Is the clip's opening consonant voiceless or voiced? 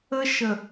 voiceless